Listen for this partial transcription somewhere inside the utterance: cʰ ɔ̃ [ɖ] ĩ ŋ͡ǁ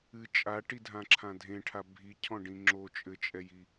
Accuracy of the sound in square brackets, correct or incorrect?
correct